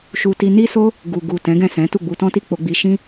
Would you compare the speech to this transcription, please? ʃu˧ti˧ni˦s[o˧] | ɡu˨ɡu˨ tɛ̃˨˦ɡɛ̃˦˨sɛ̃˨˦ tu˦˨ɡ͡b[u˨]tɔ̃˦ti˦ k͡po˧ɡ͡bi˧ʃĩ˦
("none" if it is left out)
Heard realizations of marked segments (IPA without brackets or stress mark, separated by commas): o˦, u˧